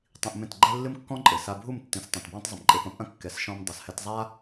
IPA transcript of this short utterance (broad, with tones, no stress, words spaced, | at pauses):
tˤĩ˧ʔmẽ˦˨tɡ͡ǃɛ˦ lːɨ˦mkːɔ̃˦ ǃʼɘ˨sa˧ bʱu˦˨mtːĩ˨s tˤĩ˨tbwɛ̃˦tˤ zˤɘ˨mǃʼe˧pɐ̃˦pʔɐ̃˦ kːɛ˨sʃɔ̃˧m dˤɐ˨shɛ˧t zˤa˦